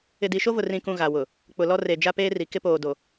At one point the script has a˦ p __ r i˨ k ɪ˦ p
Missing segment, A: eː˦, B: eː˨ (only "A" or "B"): A